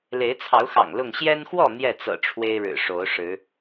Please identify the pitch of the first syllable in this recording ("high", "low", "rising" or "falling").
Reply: rising